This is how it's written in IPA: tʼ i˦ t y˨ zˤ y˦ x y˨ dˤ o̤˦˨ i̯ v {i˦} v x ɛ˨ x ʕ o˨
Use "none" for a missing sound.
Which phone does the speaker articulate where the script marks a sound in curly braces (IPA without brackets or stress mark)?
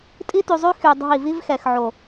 i˦